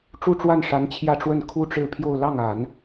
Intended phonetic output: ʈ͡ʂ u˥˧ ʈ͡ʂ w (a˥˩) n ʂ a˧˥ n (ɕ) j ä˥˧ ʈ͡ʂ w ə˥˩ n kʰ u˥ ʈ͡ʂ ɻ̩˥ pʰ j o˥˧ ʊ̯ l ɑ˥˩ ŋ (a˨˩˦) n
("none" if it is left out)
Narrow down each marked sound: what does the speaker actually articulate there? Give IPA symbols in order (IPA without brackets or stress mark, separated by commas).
a˥˩, t͡ɕʰ, a˨˩˦